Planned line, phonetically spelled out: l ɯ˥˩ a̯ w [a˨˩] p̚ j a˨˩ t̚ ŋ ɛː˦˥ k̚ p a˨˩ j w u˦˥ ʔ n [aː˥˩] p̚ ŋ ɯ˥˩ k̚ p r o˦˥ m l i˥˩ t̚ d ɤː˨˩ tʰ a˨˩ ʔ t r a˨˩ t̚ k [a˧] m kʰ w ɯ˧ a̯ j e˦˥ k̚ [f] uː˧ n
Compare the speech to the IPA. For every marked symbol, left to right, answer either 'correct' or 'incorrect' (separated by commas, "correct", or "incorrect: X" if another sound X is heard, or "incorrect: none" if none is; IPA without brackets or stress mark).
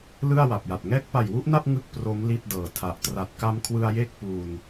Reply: correct, incorrect: a˥˩, correct, incorrect: p